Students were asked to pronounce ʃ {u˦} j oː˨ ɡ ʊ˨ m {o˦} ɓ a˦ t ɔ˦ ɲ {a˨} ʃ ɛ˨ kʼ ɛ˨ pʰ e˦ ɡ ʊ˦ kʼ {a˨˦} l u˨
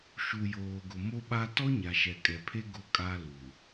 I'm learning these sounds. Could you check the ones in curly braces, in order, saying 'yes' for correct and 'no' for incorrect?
no, yes, yes, no

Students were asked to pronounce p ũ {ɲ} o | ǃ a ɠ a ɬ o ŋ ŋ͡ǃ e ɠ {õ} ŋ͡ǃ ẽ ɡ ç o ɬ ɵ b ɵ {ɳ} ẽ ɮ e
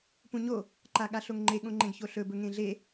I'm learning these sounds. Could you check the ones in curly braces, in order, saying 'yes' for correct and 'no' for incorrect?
yes, yes, no

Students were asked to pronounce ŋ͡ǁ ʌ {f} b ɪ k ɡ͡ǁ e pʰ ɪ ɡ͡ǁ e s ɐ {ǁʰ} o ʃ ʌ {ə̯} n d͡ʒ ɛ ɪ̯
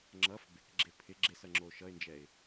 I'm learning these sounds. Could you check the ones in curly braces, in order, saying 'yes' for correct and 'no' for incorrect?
yes, no, no

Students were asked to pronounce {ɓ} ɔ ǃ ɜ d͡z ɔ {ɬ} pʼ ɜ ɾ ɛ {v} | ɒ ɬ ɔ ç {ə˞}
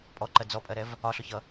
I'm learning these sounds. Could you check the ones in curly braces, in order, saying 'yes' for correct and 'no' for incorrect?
no, no, yes, no

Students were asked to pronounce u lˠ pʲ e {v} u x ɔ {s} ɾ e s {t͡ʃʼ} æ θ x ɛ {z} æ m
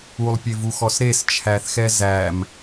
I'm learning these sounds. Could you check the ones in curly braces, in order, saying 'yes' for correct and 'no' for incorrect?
yes, yes, no, yes

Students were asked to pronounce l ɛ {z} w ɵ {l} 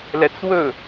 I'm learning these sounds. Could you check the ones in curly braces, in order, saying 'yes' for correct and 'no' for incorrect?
no, no

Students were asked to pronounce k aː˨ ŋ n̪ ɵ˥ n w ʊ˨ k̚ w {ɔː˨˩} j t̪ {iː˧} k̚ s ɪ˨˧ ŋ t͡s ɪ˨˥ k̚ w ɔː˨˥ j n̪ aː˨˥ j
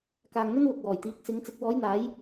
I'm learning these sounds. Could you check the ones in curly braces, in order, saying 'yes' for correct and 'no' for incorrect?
yes, no

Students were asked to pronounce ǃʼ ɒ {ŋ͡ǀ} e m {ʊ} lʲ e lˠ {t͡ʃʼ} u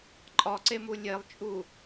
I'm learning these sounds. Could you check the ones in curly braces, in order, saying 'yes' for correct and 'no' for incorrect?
no, no, yes

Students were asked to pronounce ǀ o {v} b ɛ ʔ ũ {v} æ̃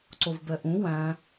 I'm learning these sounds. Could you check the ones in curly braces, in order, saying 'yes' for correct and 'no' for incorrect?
yes, no

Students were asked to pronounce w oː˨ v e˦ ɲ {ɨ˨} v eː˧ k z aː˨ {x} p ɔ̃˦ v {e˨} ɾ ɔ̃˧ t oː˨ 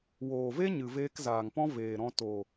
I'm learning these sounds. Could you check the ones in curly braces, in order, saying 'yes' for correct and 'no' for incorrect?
yes, no, no

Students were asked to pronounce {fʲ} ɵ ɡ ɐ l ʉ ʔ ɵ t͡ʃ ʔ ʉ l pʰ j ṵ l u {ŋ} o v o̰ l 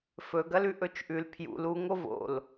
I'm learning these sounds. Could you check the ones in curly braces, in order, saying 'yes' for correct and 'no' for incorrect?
no, yes

